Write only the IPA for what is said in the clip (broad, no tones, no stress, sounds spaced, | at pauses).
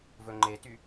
v ɵ ŋ͡ǃ e t y